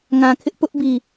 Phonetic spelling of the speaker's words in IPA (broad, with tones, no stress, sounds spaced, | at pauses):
ŋ ã˨ kʰ ɪ˦ ʔ p ʊ˦ ʔ b i˨